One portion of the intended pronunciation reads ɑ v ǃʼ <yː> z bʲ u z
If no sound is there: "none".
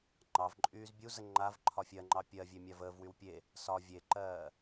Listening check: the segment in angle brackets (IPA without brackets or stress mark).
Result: yː